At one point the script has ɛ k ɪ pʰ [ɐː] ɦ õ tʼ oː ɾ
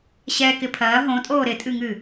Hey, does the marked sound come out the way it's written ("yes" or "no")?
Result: yes